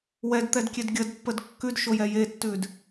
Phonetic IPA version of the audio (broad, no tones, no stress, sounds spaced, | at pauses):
w ɛ d t̪ ɛ d kʲ e d ɡʲ ə d pː ə d kː ʉ d ʃ o j ɛ j e tː ʉ d